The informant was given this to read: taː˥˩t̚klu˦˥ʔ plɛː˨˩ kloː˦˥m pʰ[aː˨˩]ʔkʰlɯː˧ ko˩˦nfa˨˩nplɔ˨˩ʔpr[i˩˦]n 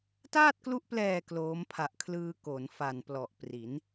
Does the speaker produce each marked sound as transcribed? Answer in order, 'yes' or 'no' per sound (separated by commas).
no, yes